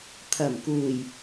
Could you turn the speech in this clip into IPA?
t̪ʰ ɐ˨˩ m k uː˨˩ j

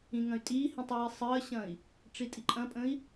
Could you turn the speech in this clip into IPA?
ĩ ŋ ɐ̃ y̯ tʼ iː h ĩ tˤ w i sˤ əː ɕ ɐ̃ i̯ | ʈ͡ʂ i tʼ i ǃʼ ɐ̃ pʼ ə̃ i̯

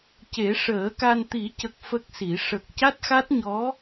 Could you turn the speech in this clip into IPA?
c e˨˩˦ ʂ əː˨˩˦ k a˧ n t̪ i˨˩˦ c ə˨˩ k̚ f ə˦˥ k̚ s i˨˩˦ ʂ ə˨˩ k̚ c a˦˥ t̚ x a˦˥ t̚ ɲ ɔ˧˥

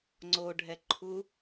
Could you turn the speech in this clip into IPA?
ŋ͡ǀ o ɖʱ ɛ ǃʰ u

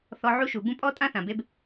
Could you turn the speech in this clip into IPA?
θ ɔ˧ ʕ u˦ ʃ u˨ b ũ˦ pʼ ɔ˦ tʼ ã˦ θ ã˨ b e˧ b

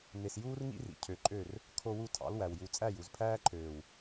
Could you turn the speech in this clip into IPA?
n e˨ s j uː˦ r ŋ ḭ˦ r ḭ˨ cʰ ø˨ ǃʼ ø˦˨ r | kʰ o˦ w u˦ tʰ ɑ̰˨˦ l w æ˨ w j u˨ t͡sʼ æ˦˨ j u˨ z pʰ æː˦ ǃʰ øː˨ w

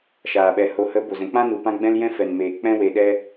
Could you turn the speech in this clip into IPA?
ʃ aː˨ ɓ ɛ˨ h o˨ h ə˨˦ b o˨ z ɛ̃˨ k͡p ã˦ n u˨ p ã˦ ɡ͡b ɛ̃˦ l j ɛ̃˦ f ɛ˨ n m eː˨ k͡p ɛ̃˦ w e˧ ɗ ɛ˦

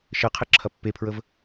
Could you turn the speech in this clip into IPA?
ʃ ɘ qʰ ɘ ǁʰ ɐ pː e pʰ ɹ ə v

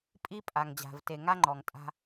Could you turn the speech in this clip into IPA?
pʼ i˦ pʼ a˨ ŋ d͡ʑ a̤˨ v t e˨ ŋ a˦ ŋ͡ǃ ɔ˨ ŋ tʼ a̤˦

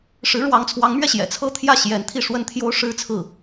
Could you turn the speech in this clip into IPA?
ʂ ɻ̩˧˥ ɻ w ɑ˧˥ ŋ t͡sʰ w ɑ˧˥ ŋ m ɥ ɛ˧ ɕ j ɛ̰˨˩ t͡sʰ ɤ˥ t̪ʰ j ä˥˩ ɕ j ɛ˧˥ n t̪ʰ i˥˩ ʂ w ə˥ n t̪ʰ j o˥ ʊ̯ ʂ ɻ̩˥ t͡sʰ ɹ̩˥˩

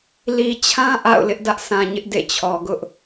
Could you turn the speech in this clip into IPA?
l i˨ t͡ɕʰ ã˦ ʔ a̰˦˨ ʊ̯ l ɪ˦ ʔ d ä˦ ʔ sʰ ã˨ ɲ ɪ˦ ʔ d ḛ˦˨ t͡ɕʰ ɔ˨ ɡ ʊ˦ ʔ

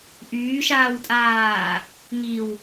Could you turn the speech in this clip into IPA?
ʔ yː ʃ aː w tʼ aː | ŋ i w

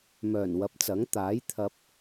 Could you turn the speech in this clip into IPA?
m œː˨˩ n w ɐ˨˥ p̚ t͡s ɐ˨˥ ŋ t̪ aː˨˥ j t̪ʰ ɐ˧ p̚

